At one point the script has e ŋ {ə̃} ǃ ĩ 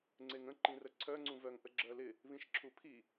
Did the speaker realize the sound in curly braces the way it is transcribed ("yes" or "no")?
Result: yes